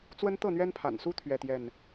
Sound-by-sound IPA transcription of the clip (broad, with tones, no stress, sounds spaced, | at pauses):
t͡s w ə˦ n t̪ ɤ˥˨ n̪ ɥ ɛ˦ n pʰ a̰˨˩ n s u˦ t̪ʰ ɥ ɛ˥˨ t̪ j ɛ˥˨ n